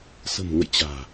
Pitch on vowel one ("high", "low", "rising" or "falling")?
low